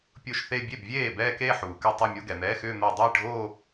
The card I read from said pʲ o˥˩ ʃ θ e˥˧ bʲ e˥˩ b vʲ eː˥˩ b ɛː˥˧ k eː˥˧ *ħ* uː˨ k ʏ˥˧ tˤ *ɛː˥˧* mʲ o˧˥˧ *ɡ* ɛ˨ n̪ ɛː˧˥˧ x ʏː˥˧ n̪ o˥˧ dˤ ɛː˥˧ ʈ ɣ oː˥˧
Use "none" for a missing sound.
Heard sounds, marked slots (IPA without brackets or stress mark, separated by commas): ħ, ɛ˥˧, ɡ